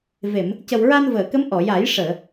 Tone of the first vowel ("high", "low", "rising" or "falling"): low